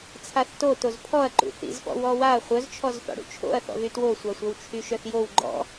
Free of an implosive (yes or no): yes